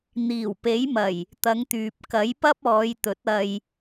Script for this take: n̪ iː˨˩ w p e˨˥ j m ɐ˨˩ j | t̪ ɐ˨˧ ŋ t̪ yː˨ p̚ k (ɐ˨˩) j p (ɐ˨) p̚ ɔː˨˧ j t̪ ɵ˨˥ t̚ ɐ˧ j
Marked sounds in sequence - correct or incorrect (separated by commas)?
incorrect, incorrect